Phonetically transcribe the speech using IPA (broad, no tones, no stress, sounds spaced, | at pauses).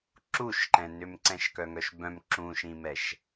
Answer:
ǁ u ʃ ǃ ɛ̃ n ʏ m ǀ ɛ̃ ʃ k œ ŋ œ ʃ b œ̃ m ǁ ũ ʃ ĩ m ɛ ʃ